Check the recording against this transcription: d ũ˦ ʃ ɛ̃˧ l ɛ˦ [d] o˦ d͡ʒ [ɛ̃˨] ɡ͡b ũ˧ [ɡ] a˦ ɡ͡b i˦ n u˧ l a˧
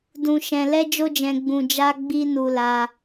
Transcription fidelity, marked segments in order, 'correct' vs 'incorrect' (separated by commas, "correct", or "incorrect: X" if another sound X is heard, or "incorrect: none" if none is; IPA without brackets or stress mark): incorrect: d͡ʒ, incorrect: ɛ̃˧, incorrect: d͡ʒ